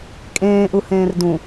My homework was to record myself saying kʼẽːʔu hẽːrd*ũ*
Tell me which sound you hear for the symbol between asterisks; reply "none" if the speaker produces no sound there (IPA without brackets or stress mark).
ũ